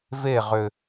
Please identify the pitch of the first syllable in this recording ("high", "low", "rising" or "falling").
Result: falling